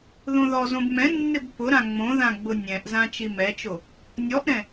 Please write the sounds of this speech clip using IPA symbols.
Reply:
ð õ ð ɔ z õ b m ɛ̃ nː ɪ b p ʊ ɾ ã ŋ͡m õ ð ã ɡ͡b ʊ nʲ ɛ̃ ʔ z ã t͡ʃ i m ɛ t͡ʃ o | nʲ ɔ ʔ ɾ ɛ̃

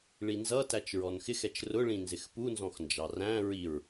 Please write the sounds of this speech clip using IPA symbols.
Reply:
ɭ i n z ʌ t æ t͡ʃ ɹ ɔ n x ɪ x ɛ t͡ʃ r ʊ ɭ ĩ n z ɪ x p u n z ɔ̃ x n d͡ʒ ɑ r æ̃ ɹ i ɹ

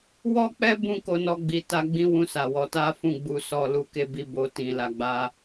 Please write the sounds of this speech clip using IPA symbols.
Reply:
w ɔ˦ k͡p ɛ˦ b ũ˦ k o˧ n ɔ˧ ɡ͡b i˨ t a˧ ɡ͡b ĩ˦ w ũ˦˨ s a˨ w ɔ˨˦ t a˦ f ũ˦˨ ɡ͡b u˨ s ɔ˨ l u˨˦ k e˦˨ b i˧ b o˨ t ĩ˨ l a˨ ɡ͡b a˧

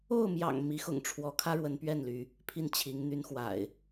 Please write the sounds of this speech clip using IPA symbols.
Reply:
o˥˨ ʊ̯ m j ɑ̰˨˩ ŋ m i˨˦ x ʊ̰˨˩ ŋ ʈ͡ʂʰ w ɔ˨˦ kʰ ä˦ ɻ w ə˨˦ n p ɥ ɛ˥˨ n l y˨˦ | pʰ i˥˨ n t͡ɕʰ i˨˦ ŋ n̪ y˨˦ n x w a̰˨˩ ɪ̯

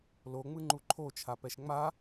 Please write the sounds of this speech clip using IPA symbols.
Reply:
l o ŋ͡m ɯ ŋ͡ǃ u ǃʰ o t͡ʃʰ a p ɛ ʃ ŋ͡m a

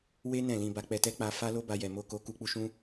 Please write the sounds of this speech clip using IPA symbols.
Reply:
w e˦ n ɛ̃˦˨ l ĩ˧ b a˧ k͡p ɛ˧ t ɛ˦ k͡p a˧ f a˦ l o˦ b a˧ j ɛ˨ m o˧ k o˧ k u˧ k͡p u˧ ʃ ũ˦

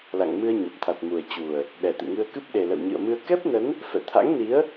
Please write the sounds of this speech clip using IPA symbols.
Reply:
l a̰˧˨ ŋ m ɨ˧ ə̯ ɲ ə˨˩ p̚ t̪ʰ a˨˩ t̚ m u˨˩ ə̯ t͡ɕ u˨˩ ə̯ | ɗ ɛ˨˩ t̪ ɨ̰˧˨ ŋ ɨ˧ ə̯ k ɨ˦˥ p̚ ɗ e˨˩ l ə̰˧˨ w ɲ ɨ̰˧˨ ə̯ m ɨ˧ ə̯ k ɛ˦˥ p̚ n ə˨˦ n | f ɛ̰˧˨ t̪ʰ a̰˧˥ ŋ n i˨˦ ə̯

